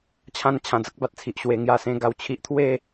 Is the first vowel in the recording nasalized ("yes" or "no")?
yes